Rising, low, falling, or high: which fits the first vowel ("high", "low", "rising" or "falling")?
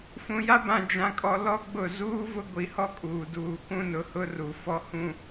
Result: low